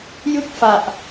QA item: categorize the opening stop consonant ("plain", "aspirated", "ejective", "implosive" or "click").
plain